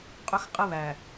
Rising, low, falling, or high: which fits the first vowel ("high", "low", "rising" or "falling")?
high